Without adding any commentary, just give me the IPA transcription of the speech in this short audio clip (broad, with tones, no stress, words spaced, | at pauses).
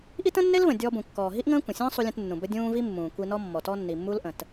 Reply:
ʔi˥tə̃˥nːe˥lvə̃˩ dʲɔː˧bũ˩kːɔː˩ ɦi˥ʔŋə̃ː˥kʷə̃˩sʲə̃ː˥ sˤu˧lʲə̃˧tnːũ˩ bə˧dʲũː˧ vi˥ mːũː˩kʷi˧nɔ˥mːɔ˩ tɔ˧nːi˩mːu˧lʔə̃˩t